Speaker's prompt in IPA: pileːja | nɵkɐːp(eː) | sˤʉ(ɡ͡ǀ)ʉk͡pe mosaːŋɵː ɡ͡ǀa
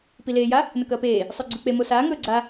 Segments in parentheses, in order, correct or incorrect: correct, correct

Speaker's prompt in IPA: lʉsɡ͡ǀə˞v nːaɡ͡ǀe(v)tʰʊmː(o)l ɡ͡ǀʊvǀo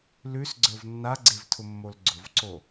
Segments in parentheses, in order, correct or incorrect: correct, correct

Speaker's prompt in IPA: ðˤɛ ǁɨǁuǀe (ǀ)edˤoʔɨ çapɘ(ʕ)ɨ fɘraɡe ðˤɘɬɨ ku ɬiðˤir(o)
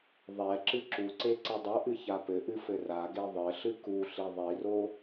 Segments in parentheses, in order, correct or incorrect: correct, incorrect: ʔ, correct

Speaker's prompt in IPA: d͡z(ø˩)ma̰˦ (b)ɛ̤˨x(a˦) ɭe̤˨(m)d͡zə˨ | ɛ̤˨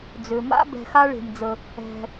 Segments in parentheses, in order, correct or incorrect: correct, correct, correct, correct

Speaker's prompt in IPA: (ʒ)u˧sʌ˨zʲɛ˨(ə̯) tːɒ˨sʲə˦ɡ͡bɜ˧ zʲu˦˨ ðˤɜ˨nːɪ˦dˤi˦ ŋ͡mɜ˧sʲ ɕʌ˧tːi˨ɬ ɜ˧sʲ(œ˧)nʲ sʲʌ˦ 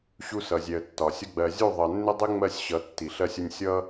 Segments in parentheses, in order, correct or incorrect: incorrect: ɕ, correct, incorrect: ə˧

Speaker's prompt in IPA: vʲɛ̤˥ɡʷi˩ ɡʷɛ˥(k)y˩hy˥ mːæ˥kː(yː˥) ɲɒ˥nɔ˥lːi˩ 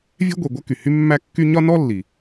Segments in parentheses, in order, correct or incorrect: correct, incorrect: y˥

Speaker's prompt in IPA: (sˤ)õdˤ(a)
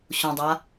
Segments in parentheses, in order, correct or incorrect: incorrect: ɕ, correct

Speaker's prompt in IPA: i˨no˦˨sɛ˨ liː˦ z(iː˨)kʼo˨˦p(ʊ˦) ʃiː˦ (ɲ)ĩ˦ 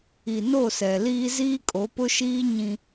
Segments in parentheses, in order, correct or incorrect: incorrect: iː˦, correct, correct

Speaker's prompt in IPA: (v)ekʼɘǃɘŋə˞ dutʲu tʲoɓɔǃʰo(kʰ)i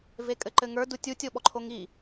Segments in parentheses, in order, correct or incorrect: correct, incorrect: ŋ

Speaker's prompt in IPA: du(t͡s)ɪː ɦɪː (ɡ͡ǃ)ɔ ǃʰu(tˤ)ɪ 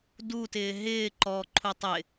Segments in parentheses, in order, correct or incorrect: incorrect: t, incorrect: ǃ, correct

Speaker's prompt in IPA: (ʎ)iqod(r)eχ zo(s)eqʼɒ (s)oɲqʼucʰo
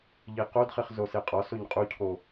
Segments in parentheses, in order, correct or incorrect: correct, incorrect: χ, correct, correct

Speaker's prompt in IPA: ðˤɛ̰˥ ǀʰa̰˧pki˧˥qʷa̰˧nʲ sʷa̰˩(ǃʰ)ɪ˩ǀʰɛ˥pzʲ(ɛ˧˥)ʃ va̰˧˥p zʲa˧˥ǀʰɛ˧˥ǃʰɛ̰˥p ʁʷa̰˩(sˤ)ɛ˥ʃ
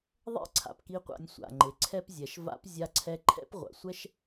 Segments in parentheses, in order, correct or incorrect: incorrect: ŋ͡ǃ, incorrect: ɛ˩˧, incorrect: sʷ

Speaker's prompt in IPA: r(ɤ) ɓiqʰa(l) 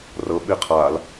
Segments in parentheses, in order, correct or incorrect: correct, correct

